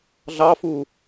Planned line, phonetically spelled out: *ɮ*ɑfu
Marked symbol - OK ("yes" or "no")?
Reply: yes